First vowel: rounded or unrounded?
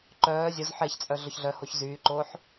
rounded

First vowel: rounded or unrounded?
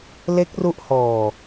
unrounded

